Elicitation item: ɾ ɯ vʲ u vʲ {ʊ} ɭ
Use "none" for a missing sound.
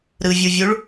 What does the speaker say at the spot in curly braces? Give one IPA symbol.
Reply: u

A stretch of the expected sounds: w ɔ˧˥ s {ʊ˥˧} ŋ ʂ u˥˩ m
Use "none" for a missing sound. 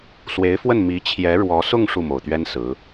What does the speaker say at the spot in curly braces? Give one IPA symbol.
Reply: ʊ˥˧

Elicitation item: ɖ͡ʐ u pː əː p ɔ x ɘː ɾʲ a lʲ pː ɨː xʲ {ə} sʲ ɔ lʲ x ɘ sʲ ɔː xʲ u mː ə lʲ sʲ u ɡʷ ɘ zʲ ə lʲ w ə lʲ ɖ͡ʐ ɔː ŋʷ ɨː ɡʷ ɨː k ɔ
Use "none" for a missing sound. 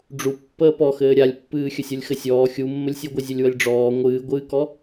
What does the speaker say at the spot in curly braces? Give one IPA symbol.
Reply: ə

